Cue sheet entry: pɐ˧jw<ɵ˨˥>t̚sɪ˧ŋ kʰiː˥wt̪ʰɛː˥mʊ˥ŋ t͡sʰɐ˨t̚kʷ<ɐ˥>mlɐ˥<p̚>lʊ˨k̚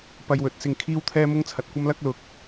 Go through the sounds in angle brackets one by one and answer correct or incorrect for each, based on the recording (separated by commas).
correct, correct, incorrect